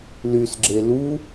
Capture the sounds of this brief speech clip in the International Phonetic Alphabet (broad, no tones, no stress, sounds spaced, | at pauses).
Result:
l y s ɡ͡ǁ e l u